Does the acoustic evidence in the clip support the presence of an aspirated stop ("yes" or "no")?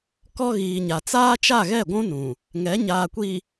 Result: no